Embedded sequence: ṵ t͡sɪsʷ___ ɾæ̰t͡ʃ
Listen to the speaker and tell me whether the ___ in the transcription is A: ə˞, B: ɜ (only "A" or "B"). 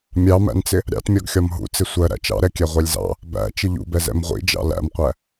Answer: B